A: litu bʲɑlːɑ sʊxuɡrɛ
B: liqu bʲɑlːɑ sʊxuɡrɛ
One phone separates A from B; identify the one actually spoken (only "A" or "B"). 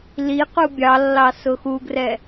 B